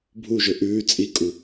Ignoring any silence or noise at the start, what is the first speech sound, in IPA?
bʱ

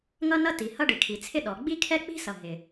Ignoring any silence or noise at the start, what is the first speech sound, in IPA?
ŋ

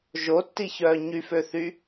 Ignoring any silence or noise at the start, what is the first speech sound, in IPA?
ʒ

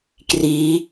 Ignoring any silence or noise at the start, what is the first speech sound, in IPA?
k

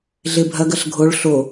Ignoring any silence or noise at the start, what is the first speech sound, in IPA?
ɮ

